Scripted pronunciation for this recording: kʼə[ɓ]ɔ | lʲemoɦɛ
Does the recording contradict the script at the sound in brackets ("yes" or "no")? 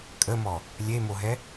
yes